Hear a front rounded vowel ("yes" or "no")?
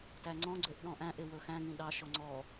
yes